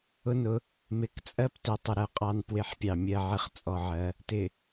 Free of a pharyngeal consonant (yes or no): no